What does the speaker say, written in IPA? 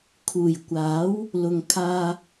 kʰ uː˨˩ j kʷ aː˨˥ w | l ʊ˨ ŋ kʰ aː˧

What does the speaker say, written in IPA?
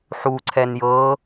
ħ u ǀʰ ɛ n j ɤ

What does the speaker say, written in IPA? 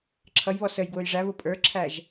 ǁʰ ʌ j β ɔ s ə j ɡ w ʊ j ʐ æ β ʊ pʼ ə˞ ǁʰ æ ʒ

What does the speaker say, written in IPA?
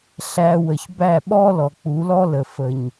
ɬ æ˧ w ə˨ ç b æ˦˨ ɓ ɔ˦ l ɔ˨ k͡p u˨˦ l ɔ˦ l ə˨ f ə˨ ɲ

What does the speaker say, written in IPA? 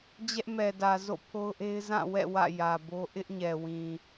d͡ʑ ɛ˦ ʔ m ɛ˨ d ä˨ z o̰˦˨ pʰ o˦ ʊ̯ ʔ e˦ ɪ̯ z ã˦˨ w ɛ̰˦˨ w ä̰˦˨ j ä˨ b o˦ ʔ ɪ˦ ʔ ɲ ɛ˨ w ĩ˨

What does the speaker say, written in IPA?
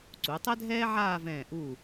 ǀ u˩˧ tˤ ɛ˥ dʱ ɛː˥ ʕ aː˥˧ v ɛ̃ː˧˩ ʔ u˧˩

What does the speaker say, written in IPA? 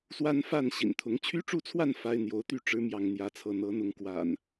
s w a˦ n f a˥˨ n ɕ ḭ˨˩ n t̪ʰ ʊ˨˦ ŋ t͡ɕʰ y˦ ʈ͡ʂ u˥˨ t͡sʰ w a˥˨ n f a˦ ɪ̯ n̪ j o˨˦ ʊ̯ t̪ y˥˨ ʈ͡ʂ ɻ̩˨˦ m j ɑ˥˨ ŋ n̪ j ä˦ t͡sʰ ɤ˥˨ n̪ ɤ˨˦ n̪ ʊ˨˦ ŋ k w a̰˨˩ n

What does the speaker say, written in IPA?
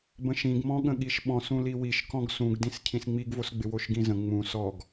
b ə̃ ʃ ĩ ɡ m ɔ̃ ɠ ə̃ ɠ i ʃ ɓ ɔ̃ s ũ l i w i ʃ k ɔ̃ ɡ s ũ ɡ d ĩ s cʰ ĩ s ŋ͡m i ɡ v o s ɡ͡b ɪ w o ʃ ɡ ĩ z ə̃ ŋ͡m ũ s ɔ ɡ

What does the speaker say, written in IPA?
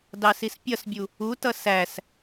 d ɑ s i s pʲ ʌ s bʲ u | u t ʌ s æ s

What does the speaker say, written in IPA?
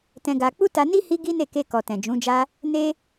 t ɛ̃˧ ɡ a˧ k͡p u˦ t a˧ n i˦ h i˦ ɡ i˦ n e˦˨ k e˧ k ɔ˨ t ɛ̃˨ d͡ʒ ũ˨˦ d͡ʒ a˦ | n e˦

